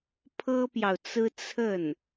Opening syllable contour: high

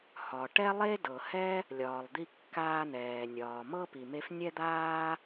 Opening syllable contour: low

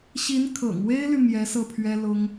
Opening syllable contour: rising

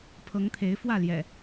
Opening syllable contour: rising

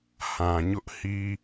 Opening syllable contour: low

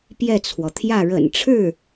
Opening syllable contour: falling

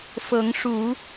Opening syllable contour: rising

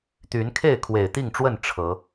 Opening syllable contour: rising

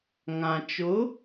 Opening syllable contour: low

